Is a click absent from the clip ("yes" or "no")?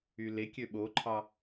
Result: no